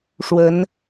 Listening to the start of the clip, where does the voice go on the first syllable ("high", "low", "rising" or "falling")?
rising